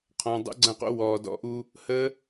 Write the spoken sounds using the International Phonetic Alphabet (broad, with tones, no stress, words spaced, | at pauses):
qʰɔ̃ː˨dˤo̰˦ɡ͡ǀɐ̃˦˨qo̰˦ wɔː˨dɔ̰˧ʔu˦ | hə˦